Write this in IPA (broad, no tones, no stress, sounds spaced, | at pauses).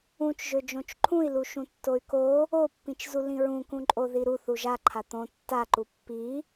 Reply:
ũ t͡ʃ ʒ ø d͡ʒ õ t͡ʃ ǃʰ ũ i̯ l u ʃ ũ tː o y̯ k o | o pː ĩ t͡ʃ z u l ĩ ɹ ũ k ũ ǃʼ o ð i ɾ u θ u ʒ a ǃʰ a t̪ õ tː a ǃ u pː i